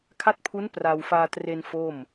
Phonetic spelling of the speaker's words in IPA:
kʰ a˦˥ t̚ pʰ u˦˥ n p r a˧ w f aː˧ t r e˧ n f o˥˩ m

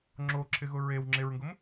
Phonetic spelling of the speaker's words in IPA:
ŋ͡ǁ o ǁʰ ɪ ɣ ʊ ɹ e w ŋ͡ǁ e ɹ ŋ ɡ ʊ m

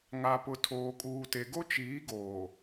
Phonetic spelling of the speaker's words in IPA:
ŋ a˨ p ʊ˨ tʰ oː˨ kʼ uː˨ t e˨ ɡ o˦ t͡ʃ iː˨˦ ɡ oː˨

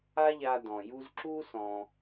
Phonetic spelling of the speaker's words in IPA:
a˥ ʎ a˦ d ɔ̃˩ j u˥ z ǁ u˥ s ɔ̃˩

